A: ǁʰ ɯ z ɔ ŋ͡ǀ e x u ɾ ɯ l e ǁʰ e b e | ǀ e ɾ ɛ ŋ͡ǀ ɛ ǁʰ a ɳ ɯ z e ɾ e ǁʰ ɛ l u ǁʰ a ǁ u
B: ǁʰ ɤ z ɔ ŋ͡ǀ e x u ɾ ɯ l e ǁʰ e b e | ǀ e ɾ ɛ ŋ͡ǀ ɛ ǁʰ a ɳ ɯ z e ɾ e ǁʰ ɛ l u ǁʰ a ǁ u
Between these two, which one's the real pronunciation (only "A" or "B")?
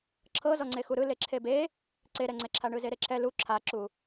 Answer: B